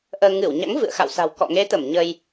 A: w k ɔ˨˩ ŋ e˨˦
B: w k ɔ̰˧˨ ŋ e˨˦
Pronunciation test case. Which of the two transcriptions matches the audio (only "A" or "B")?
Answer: B